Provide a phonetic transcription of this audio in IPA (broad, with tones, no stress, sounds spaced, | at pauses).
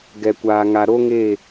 ɡ ɛ˨ kʷ aː˨ ŋ a˨ ɾ o˦ ŋ e˦˨